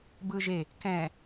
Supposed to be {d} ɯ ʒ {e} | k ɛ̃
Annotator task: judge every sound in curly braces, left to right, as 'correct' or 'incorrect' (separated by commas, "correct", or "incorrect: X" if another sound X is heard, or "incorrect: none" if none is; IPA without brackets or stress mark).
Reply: incorrect: b, correct